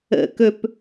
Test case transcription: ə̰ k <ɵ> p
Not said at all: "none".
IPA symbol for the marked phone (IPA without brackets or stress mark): ɵ